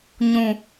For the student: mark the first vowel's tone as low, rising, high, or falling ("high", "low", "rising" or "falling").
high